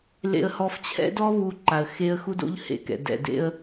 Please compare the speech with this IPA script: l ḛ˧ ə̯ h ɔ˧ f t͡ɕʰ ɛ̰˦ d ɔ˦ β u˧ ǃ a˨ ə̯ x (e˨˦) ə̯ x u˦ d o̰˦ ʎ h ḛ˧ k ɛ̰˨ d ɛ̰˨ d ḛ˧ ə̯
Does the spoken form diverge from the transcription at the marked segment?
yes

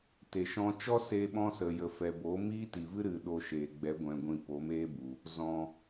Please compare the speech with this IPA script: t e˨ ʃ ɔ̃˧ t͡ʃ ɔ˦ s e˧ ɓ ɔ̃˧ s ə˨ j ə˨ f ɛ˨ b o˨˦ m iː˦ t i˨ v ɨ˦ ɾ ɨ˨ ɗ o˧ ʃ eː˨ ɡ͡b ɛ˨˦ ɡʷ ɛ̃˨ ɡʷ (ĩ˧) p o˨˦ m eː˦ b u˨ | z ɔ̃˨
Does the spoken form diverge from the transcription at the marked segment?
no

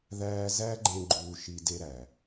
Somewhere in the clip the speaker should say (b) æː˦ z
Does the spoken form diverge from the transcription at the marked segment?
yes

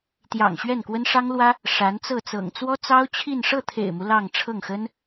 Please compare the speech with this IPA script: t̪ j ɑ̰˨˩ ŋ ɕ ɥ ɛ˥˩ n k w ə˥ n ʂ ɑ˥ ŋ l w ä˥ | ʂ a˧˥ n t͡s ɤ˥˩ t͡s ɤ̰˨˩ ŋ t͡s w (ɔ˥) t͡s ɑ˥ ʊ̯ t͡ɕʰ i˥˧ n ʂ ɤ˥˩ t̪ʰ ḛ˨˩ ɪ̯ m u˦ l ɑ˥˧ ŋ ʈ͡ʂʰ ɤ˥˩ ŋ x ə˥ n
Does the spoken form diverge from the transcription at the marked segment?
no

